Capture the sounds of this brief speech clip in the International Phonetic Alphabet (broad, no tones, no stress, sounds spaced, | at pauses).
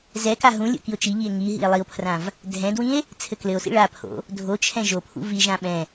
z ɛ k a ɦ ũ lʲ o̰ k i o̯ t͡ʃ i ʎ i e̯ ŋ i ɦ ḭ e̯ lˠ i o̯ pʰ r ã v | dʱ ɛ̃ d w ĩ e̯ | t͡sʰ ɘ k l ɘ o̯ s ḭ ɭ a pʰ o̰ | dʱ o t͡ʃʰ ɛ̃ ʒ o pʰ ṵ v i ʒ ã ɓ ɛ̃